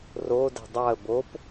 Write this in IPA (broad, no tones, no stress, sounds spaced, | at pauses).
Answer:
r o d ɛ̤ dˤ ɑ ə̯ b o p